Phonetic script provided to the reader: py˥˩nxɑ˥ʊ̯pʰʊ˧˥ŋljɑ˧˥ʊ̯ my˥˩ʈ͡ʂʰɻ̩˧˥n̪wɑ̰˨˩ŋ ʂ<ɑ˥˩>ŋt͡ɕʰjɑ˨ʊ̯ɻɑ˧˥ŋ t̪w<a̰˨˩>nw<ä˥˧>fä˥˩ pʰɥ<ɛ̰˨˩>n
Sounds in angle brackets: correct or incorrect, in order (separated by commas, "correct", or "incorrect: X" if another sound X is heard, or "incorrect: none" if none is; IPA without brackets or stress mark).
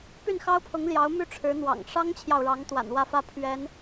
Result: incorrect: ɑ˥, correct, correct, incorrect: ɛ˧˥